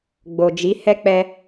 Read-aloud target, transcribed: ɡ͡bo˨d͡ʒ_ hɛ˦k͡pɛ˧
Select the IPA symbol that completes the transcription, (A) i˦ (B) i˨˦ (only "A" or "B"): B